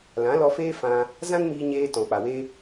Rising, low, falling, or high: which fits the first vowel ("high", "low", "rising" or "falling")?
rising